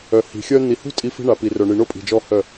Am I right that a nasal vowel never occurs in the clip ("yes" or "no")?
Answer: yes